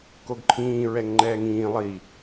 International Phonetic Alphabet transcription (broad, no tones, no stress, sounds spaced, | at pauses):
k o ɡ ǃʰ ĩː ɹ ɛ ŋ ŋ͡ǃ ɛː ŋ ĩː lˠ i